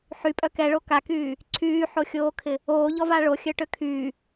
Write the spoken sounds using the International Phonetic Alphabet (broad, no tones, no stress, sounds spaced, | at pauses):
ħ y pʼ œ k ɛ ɭ o k a k yː | ǀʰ yː ħ o xʲ oː kʰ ɪ | oː ʎ ɔ v a ɭ o xʲ œ ʈ ø kʰ yː